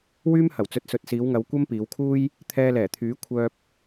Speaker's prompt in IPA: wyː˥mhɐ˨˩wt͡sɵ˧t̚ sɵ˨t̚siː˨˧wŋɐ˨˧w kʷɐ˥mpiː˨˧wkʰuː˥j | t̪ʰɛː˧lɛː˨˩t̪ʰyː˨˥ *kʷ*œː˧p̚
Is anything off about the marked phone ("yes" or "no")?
yes